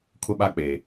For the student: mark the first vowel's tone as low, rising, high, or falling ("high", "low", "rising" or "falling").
high